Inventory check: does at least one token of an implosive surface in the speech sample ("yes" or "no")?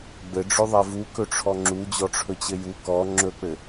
no